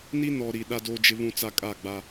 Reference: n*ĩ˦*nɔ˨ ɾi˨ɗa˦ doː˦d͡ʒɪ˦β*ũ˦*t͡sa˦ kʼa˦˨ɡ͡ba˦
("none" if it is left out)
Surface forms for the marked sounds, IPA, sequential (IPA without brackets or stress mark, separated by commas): i˦, ũ˦